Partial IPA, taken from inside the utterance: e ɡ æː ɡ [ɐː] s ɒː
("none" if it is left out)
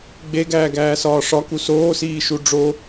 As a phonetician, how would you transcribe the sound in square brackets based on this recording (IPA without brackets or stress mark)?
æː